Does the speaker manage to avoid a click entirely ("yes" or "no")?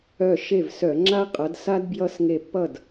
no